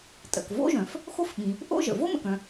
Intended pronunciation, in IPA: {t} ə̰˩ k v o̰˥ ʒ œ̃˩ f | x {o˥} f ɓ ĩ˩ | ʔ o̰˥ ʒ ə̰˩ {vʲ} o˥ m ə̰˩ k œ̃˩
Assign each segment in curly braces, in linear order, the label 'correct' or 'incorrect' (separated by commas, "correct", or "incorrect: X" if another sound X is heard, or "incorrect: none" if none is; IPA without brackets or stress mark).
incorrect: tʼ, correct, incorrect: v